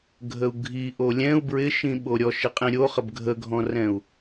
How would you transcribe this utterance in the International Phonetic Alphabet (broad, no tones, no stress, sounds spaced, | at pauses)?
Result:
ɡʱ ə u̯ ɡʱ i ʔ o lʲ ɛ̃ u̯ b ɹ ɪ ʃ ĩ ɓ o ɾʲ ɔ ʃ ɪ qʼ ĩ ɾʲ o χ ə b ɡʱ ə ɡʱ ɔ̃ r ɛ̃ u̯